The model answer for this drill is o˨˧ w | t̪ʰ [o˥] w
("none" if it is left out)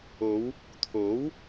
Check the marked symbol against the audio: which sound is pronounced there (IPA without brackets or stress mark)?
o˨˥